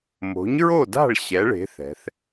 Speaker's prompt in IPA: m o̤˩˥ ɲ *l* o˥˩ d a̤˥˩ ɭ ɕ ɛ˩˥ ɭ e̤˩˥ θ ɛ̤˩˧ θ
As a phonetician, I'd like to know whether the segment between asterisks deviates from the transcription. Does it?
yes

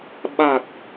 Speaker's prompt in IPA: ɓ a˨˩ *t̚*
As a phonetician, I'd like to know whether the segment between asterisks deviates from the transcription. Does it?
no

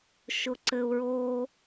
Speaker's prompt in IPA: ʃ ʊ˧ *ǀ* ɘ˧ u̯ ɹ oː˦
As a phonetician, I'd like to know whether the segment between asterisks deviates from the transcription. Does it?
no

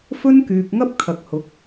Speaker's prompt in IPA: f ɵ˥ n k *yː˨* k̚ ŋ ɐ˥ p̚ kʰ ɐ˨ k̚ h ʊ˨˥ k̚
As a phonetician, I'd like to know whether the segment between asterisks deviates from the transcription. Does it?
no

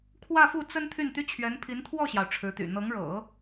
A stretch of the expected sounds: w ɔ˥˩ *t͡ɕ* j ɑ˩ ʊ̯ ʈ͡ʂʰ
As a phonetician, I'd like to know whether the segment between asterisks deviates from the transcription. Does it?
yes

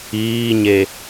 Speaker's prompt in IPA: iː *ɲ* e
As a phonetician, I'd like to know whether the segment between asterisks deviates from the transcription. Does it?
no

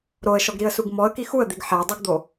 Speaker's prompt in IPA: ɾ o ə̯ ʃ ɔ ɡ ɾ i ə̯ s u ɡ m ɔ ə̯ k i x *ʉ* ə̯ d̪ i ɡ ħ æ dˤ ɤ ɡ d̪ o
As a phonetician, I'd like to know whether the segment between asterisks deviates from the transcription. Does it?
yes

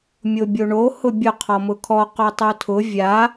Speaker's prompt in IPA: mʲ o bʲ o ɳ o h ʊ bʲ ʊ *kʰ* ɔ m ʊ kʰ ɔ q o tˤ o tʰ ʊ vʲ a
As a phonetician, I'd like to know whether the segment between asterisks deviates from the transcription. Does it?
yes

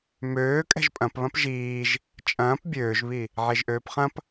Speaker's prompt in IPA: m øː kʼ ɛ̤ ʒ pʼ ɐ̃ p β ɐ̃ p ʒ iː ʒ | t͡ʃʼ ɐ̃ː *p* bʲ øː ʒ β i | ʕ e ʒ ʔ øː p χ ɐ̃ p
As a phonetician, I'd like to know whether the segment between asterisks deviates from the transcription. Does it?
no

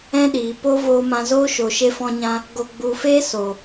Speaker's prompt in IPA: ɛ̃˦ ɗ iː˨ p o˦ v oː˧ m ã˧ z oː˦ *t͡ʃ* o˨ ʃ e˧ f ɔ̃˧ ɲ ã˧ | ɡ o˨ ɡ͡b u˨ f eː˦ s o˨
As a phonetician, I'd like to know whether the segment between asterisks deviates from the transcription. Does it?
yes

